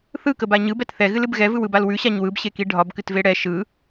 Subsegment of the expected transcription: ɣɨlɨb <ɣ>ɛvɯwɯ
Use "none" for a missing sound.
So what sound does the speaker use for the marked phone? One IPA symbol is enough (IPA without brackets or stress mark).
ɣ